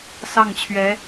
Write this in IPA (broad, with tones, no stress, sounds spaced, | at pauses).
s ɑ˥˩ ŋ t͡ɕʰ ɥ ɛ˧˥